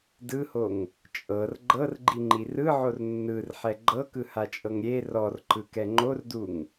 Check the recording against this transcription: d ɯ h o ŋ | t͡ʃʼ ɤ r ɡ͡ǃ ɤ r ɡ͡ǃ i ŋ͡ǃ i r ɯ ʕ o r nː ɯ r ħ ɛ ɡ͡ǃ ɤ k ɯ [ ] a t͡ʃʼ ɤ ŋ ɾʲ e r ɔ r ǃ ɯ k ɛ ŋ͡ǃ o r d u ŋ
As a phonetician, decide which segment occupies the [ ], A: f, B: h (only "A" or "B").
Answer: B